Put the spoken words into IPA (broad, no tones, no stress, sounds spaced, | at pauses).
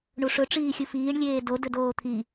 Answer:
ɳ u ʂ ɵ ʈ͡ʂ iː xʲ ɨ f iː ɳ lʲ eː d o d ɵ d oː t̪ʰ i